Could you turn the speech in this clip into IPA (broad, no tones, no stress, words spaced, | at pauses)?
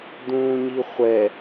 d̪ũːɲiχʷɛ